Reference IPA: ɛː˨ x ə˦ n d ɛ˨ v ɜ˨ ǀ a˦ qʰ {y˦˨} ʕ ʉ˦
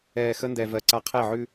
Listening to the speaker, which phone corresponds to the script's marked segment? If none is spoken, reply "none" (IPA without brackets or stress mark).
e˦˨